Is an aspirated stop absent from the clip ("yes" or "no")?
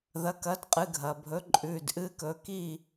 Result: yes